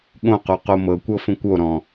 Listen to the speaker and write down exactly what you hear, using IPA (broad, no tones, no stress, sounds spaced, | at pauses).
ɠ õ q o q o m ɤ kʷ ɤ f õ kʷ o ɾ ɔ̃